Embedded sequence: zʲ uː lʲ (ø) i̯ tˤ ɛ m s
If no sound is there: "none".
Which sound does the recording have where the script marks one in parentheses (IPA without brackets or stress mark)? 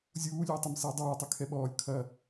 ø